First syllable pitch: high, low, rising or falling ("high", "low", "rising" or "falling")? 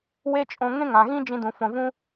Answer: high